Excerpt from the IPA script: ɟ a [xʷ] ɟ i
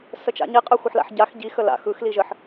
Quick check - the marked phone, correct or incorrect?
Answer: incorrect